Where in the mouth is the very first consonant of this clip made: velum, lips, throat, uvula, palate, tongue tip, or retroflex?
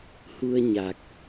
throat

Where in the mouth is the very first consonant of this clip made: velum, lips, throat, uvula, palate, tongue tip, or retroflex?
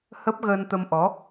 throat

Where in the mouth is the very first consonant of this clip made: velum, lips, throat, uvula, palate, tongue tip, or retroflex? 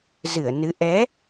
tongue tip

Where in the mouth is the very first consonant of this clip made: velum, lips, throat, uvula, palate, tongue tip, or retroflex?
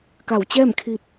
velum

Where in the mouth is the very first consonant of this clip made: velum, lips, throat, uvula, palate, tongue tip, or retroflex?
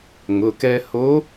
velum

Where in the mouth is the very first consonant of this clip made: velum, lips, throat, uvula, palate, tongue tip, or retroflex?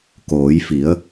velum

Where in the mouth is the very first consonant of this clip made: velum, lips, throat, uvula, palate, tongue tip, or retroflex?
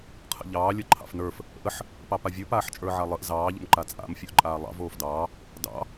uvula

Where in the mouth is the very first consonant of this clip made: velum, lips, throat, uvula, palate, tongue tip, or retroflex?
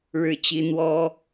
retroflex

